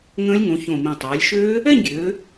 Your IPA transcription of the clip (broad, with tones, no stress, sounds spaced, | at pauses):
ŋ ə̃ː˦˥ lʲ ŋ õ˩˧ ç õ˨˩ m ĩ˨˩ tˤ ɜː˩˧ lʲ ʃ øː˦˥ | ɛ˥˧ ɲ ɡʲ øː˩˧